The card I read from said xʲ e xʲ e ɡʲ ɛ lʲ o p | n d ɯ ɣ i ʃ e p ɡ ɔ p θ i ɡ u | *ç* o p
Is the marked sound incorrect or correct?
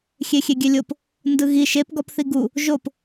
incorrect